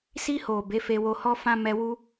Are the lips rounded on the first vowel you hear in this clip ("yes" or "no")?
no